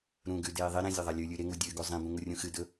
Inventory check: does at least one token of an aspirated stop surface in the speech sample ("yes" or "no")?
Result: no